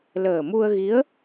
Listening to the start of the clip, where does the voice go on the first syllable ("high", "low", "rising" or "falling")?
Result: low